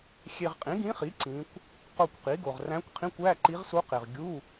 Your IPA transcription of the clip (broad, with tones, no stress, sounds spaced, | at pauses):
xʲ e˨ ʁ qʼ ĩ˩˥ ɡ ĩ˧˥ χ i˩˥ ǀ ĩ˧˥ kʷ | q o˦˨ kʷ q i˩˥ ɡ o˨ ʁ r æ̃˧˥ kʷ qʰ ĩ˧˥˧ kʷ æ˧˥˧ ǃ i˧˥ ʁ s u˧˥ q e˨ ʁ ɡʲ u˧˥˧